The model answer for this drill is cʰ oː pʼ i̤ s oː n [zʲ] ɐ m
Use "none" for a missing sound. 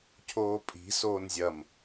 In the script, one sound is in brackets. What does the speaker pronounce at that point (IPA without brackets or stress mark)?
zʲ